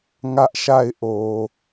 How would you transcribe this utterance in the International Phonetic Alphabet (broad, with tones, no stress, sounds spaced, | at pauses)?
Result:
ŋ ä˦ ʔ ʃ a˦˨ ɪ̯ ʔ o˨